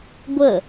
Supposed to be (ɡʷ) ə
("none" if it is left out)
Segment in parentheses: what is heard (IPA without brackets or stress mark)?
ɡʷ